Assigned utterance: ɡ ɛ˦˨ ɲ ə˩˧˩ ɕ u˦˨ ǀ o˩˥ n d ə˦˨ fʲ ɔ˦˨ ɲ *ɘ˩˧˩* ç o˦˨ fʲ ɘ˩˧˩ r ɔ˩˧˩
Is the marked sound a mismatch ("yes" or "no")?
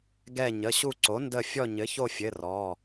yes